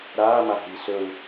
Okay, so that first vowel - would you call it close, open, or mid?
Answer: open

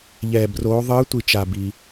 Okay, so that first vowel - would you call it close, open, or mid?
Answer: mid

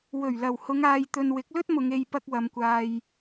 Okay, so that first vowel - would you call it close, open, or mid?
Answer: mid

